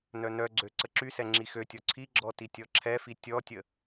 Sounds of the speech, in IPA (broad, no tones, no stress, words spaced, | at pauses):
nœnœɡ͡ǀø ǀəǁysɛ ŋ͡ǁixøtʲɔ ǀʰiɡ͡ǁɔ titʲɔǁʰɛfi tʲɔtʲə